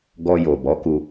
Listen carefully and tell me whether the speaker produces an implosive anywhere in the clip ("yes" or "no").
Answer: no